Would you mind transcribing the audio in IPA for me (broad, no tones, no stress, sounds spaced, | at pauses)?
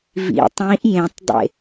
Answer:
v ḭ tˤ ĩ ʔ j ẽ tˤ dˤ ḛ